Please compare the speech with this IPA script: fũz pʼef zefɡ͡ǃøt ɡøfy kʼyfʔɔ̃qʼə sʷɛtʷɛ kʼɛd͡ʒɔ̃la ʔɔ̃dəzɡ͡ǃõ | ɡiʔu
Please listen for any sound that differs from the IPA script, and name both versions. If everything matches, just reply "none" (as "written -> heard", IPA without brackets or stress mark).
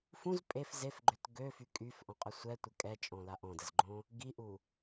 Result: d͡ʒ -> t͡ʃʼ